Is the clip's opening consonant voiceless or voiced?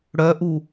voiced